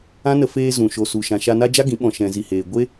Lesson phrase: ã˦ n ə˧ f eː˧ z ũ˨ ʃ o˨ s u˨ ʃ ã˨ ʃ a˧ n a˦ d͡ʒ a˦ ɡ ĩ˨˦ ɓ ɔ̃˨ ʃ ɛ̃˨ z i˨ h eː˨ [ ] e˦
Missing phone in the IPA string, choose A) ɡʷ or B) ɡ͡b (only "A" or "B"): A